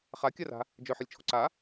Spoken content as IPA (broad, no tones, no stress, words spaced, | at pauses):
χakʲara̤ | d͡ʒœħɪlʲt͡ʃʰo̤ ǀa